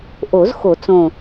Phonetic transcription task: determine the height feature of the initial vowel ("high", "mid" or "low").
mid